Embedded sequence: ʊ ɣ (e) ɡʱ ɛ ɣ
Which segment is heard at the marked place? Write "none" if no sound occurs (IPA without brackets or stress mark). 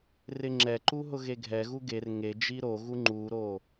e